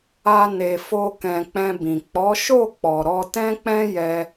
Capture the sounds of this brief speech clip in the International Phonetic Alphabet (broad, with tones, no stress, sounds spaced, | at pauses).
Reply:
a˦ n e˧ f o˦ k ɛ̃˧ k͡p ɛ̃˧ b ĩ˨ k͡p ɔ˨˦ ʃ o˦˨ k͡p ɔ˨ ɾ ɔ˧ t ɛ̃˦ k͡p ɛ̃˦ j ɛ˧